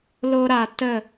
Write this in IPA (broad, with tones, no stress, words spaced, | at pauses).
lo˦ɾa˧ tə˦˨